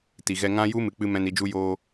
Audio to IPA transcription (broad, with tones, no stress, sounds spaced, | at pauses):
t i˨ ɣ ɛ˧ ŋ ã˦ j u˦ m ɨ˨ k͡p ɨ˧ m ɛ̃˧ n i˧ d͡ʒ u˦ j oː˧